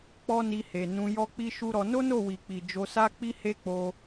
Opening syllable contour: high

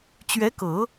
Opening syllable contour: rising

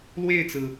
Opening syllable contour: falling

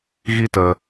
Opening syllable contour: high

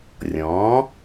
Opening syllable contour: rising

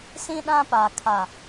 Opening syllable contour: high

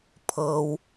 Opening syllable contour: low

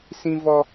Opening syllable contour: high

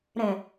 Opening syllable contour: low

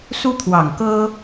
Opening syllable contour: high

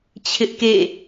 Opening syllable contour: high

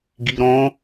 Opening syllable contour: low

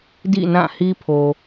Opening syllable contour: falling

